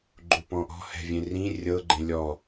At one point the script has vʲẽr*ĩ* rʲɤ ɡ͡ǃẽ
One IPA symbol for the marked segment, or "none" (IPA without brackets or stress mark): ĩ